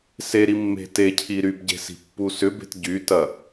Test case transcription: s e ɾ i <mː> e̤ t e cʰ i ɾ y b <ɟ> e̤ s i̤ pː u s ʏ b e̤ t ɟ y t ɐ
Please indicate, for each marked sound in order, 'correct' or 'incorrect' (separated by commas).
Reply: correct, correct